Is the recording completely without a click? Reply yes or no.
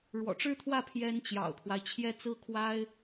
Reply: yes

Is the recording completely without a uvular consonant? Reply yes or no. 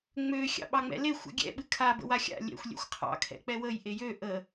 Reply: no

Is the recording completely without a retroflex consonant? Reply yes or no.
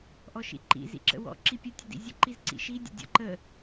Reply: yes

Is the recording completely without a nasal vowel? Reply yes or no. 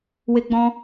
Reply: no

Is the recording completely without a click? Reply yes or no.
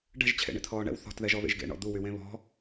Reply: yes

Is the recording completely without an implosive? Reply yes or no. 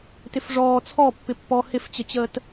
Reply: yes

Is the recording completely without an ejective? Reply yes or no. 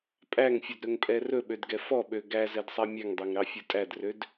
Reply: no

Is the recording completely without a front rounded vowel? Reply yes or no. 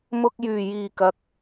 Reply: no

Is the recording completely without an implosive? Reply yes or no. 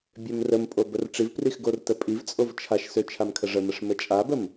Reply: yes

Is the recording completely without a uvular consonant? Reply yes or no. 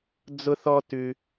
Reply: yes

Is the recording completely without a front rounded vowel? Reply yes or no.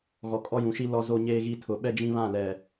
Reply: yes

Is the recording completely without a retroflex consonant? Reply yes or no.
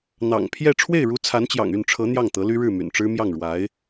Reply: no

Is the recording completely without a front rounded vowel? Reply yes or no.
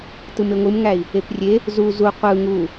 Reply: yes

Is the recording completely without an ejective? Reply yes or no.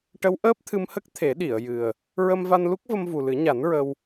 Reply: yes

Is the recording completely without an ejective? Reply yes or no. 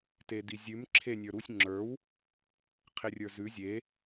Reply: yes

